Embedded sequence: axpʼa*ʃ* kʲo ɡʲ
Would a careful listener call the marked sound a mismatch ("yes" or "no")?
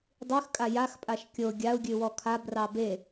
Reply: no